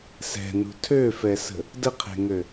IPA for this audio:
s ɛ̤ n ṳ tʰ ø f ɛ s ə̤ | d ə qʰ e̤ ŋ ø

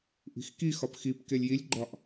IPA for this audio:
ʔ i̤ x k i x ɒ p x i p k e lʲ j i lʲ ɡ͡ǃ ɒ ʔ

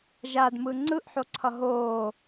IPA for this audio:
ʒ a d m ɯ ŋ͡ǀ ɯ ʔ ħ o ǀʰ ʌ ɦ oː

